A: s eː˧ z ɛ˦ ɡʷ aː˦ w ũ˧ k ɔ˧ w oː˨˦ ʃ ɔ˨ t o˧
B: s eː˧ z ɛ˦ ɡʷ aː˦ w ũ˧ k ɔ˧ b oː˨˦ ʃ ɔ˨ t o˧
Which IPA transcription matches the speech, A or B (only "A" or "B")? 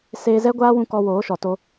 A